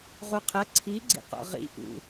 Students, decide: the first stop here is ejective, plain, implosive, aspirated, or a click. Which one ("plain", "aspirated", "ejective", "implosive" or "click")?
aspirated